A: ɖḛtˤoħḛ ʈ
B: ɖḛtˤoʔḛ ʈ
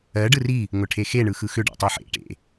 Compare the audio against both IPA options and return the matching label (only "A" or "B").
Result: A